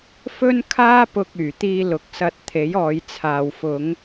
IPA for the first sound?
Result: f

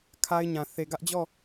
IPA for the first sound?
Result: kʰ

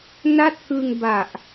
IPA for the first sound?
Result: n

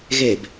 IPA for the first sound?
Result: ɣ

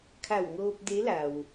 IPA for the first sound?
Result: kʰ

